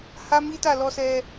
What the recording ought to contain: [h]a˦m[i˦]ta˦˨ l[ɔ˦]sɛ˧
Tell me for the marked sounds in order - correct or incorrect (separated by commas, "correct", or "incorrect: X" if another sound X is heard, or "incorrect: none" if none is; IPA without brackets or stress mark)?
correct, correct, incorrect: ɔ˧